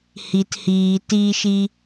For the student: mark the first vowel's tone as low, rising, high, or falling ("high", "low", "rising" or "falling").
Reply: low